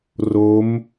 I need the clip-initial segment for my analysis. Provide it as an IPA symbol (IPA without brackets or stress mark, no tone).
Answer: r